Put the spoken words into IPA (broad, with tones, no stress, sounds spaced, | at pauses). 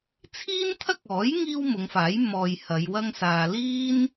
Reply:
t͡sʰ iː˥ n t̪ʰ ɐ˥ k̚ ɔː˨˥ j ŋ iː˥ w m ʊ˨˧ ŋ f aː˨˥ j m ɔː˨ j h ɐ˨˧ j w ɐ˥ ŋ s aː˧ l iː˥ n